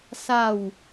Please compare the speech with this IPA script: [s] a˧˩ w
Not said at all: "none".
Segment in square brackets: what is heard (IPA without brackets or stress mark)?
s